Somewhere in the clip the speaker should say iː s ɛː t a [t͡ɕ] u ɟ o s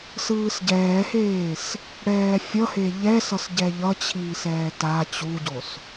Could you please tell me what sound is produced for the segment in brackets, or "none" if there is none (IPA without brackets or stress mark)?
t͡ɕ